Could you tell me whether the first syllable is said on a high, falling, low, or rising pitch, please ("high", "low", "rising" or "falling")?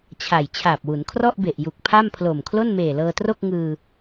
low